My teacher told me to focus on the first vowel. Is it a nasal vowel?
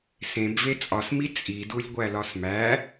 yes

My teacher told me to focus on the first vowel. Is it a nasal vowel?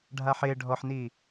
no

